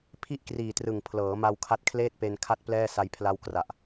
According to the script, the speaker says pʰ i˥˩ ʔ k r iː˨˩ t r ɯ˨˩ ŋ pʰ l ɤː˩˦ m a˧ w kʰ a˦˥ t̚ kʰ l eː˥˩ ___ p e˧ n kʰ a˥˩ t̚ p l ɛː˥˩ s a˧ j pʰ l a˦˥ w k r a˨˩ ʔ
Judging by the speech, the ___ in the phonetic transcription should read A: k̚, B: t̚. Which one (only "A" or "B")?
B